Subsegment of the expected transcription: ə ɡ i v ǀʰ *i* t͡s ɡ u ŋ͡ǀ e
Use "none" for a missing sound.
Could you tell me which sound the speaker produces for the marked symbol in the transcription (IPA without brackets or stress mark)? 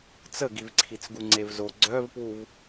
i